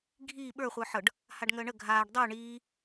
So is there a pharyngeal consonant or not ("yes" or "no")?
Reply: yes